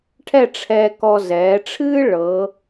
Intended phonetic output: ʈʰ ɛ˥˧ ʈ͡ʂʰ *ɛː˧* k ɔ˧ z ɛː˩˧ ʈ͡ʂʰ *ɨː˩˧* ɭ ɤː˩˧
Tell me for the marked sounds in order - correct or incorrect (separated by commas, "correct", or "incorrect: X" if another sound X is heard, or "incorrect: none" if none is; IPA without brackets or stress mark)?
correct, incorrect: ɨː˥